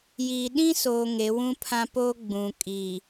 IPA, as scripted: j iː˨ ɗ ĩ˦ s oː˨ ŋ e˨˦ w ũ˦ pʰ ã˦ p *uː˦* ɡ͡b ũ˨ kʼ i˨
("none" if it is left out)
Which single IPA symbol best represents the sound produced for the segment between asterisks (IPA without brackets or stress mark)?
oː˦